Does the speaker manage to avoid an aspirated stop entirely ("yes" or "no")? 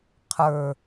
no